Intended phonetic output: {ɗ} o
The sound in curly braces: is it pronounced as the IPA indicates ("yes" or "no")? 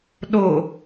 yes